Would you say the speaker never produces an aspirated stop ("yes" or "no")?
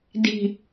yes